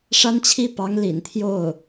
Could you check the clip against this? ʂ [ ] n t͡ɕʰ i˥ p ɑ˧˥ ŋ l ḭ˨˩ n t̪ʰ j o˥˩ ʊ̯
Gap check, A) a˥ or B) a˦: A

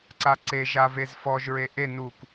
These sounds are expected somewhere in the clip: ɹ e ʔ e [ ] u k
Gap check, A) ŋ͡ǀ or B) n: B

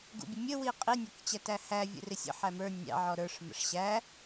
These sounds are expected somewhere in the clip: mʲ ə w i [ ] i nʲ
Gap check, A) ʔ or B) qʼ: B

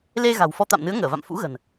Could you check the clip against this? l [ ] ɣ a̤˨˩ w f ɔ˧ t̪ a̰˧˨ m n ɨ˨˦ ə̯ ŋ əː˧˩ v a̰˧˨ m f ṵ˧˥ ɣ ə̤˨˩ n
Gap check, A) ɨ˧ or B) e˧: B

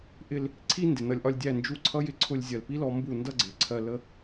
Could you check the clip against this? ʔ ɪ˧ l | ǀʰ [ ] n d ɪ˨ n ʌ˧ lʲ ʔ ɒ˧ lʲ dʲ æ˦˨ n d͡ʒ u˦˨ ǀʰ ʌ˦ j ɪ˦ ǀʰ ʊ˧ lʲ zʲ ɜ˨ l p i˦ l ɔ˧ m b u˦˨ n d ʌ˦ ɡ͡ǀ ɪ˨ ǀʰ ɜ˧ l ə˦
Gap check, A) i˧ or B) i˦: B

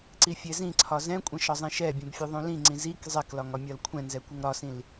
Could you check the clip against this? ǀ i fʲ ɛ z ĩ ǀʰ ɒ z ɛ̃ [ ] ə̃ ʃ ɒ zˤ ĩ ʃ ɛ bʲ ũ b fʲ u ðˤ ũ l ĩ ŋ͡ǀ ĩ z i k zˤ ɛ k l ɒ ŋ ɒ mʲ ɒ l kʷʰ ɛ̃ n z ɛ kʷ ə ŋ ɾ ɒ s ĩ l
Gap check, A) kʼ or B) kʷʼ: B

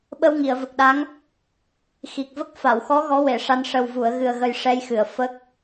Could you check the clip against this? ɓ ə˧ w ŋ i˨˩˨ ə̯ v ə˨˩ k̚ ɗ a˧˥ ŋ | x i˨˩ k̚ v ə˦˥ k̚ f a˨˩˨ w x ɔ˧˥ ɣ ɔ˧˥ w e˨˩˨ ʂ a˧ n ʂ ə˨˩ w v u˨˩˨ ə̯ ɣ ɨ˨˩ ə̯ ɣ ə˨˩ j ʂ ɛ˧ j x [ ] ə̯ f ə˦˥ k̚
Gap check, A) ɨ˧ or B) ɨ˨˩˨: B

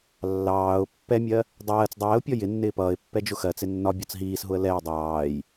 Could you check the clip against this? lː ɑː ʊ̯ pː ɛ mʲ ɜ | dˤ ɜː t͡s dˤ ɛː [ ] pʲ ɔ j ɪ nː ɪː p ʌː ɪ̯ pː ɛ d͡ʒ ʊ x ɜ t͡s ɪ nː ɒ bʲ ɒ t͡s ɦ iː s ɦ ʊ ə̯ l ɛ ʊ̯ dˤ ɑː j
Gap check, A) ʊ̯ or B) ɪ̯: A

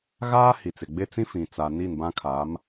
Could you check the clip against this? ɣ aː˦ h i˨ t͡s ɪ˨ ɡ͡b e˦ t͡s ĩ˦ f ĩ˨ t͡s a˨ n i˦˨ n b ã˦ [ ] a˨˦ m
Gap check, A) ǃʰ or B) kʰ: B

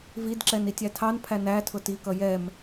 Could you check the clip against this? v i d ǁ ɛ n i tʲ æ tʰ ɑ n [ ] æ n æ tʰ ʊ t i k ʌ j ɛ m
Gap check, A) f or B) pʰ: B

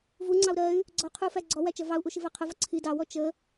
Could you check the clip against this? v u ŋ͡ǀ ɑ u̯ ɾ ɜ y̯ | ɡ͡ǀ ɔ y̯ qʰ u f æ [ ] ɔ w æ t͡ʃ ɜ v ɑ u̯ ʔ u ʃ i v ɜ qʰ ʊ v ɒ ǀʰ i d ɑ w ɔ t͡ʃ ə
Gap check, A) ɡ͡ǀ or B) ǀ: A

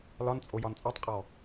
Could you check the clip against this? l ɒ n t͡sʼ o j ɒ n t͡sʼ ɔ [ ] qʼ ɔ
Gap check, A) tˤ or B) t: A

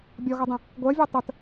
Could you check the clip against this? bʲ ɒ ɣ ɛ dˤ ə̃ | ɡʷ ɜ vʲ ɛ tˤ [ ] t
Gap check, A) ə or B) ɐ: A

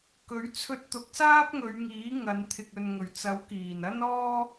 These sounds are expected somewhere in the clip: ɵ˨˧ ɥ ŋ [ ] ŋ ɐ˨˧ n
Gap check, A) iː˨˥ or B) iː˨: A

